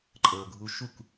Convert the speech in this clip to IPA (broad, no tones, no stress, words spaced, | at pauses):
ǃʼɤːɡʱuʃuk